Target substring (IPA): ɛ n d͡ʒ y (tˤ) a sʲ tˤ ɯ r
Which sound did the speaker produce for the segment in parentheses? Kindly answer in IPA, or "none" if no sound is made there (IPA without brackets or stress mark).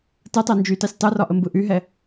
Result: t